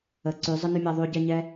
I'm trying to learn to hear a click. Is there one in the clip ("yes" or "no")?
yes